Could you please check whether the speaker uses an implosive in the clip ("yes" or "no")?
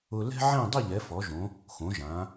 no